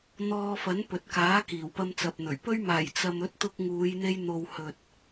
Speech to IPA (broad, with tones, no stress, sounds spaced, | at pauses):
n̪ ɔː˧ f ɐ˨˥ n p ɵ˨ t̚ k aː˨˥ k iː˨˩ w p ɐ˧ m t͡s ɐ˨ p̚ n̪ ɵ˨˩ ɥ p ɵ˧ ɥ m aː˨˩ j t͡s ɐ˧ m ɵ˨˥ t̚ t̪ ʊ˧ k̚ ŋ uː˨˧ j n̪ e˧ j n̪ o˨ w h ɵ˨ t̚